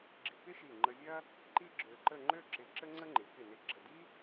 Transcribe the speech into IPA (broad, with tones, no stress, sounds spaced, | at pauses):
ɡ͡ǁ ɪ˧ k ɪ˥ ʃ i˧˩ ŋ͡ǃ ə˧ vʲ ɐ˥ | ǃ i˥ ɡ͡ǁ ø˧ ǃ ə˥˧ ŋ͡ǃ ø˥˧ ǁ ɪ˧˩ ǁ ə˥ ŋ͡ǀ ə˥ ŋ͡ǃ ɪ˩˧ k ɪ˧˩ n ɪ˧˩ ɡ͡ǁ ə˧˩ d i˥